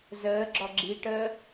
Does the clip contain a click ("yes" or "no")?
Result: yes